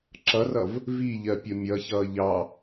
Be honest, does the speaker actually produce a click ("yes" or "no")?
yes